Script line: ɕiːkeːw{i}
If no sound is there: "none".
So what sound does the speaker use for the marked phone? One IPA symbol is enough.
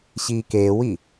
i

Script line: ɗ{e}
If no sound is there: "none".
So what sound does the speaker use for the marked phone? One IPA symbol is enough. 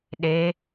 e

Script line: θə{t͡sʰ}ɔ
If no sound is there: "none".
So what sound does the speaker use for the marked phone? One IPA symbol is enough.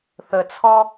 t͡sʰ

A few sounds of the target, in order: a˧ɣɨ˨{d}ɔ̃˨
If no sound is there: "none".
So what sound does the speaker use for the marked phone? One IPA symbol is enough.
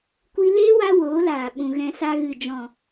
d͡ʒ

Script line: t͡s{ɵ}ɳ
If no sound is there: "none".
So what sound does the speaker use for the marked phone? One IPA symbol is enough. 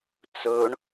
ɵ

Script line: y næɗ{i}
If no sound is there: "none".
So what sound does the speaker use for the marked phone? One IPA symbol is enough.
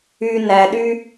y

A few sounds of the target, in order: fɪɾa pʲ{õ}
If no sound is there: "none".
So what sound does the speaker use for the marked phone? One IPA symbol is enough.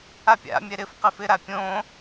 õ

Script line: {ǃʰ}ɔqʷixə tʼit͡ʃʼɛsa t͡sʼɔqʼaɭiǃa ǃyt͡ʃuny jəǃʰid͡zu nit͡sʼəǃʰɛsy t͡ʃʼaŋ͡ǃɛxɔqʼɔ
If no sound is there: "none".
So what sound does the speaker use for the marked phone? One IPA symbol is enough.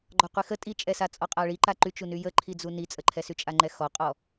ɡ͡ǃ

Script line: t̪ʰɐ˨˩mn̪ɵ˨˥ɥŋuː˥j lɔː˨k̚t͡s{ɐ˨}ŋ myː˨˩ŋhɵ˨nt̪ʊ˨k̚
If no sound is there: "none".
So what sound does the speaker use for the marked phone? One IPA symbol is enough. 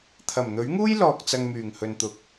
ɐ˨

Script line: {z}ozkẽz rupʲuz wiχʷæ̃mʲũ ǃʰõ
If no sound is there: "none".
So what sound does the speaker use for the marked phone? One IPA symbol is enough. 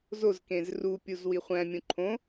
z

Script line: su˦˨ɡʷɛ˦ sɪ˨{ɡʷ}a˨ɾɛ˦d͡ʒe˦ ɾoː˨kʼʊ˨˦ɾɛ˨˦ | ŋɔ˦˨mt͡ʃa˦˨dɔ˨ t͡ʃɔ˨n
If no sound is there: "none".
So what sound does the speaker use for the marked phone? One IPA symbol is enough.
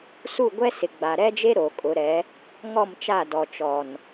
ɡ͡b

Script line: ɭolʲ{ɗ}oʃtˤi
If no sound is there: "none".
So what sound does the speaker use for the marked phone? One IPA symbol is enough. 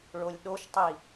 ɗ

